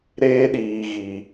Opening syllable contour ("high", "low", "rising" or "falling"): high